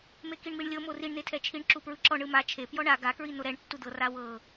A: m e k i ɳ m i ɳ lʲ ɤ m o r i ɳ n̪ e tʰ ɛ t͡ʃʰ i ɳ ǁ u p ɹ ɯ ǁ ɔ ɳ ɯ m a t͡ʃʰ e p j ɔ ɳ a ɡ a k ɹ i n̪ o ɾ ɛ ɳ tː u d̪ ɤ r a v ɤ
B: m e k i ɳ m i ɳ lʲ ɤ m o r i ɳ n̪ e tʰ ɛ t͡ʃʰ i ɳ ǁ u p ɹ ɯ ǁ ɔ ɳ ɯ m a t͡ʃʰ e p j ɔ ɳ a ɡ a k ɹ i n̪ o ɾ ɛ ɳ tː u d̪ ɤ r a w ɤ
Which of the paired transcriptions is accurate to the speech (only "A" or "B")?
B